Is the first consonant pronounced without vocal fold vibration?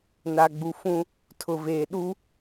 no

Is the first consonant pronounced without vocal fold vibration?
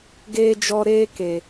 no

